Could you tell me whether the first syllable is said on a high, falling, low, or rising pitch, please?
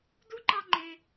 high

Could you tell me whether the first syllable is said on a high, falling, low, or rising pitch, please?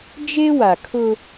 high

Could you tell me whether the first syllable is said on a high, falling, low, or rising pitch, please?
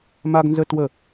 high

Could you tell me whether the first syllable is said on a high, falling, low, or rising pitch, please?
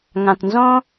low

